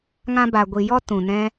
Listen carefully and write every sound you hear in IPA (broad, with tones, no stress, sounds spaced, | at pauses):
ŋ ã˧ b a˨ ɡʷ i˨ j ɔ˦ t ũ˨ n ɛ̃˦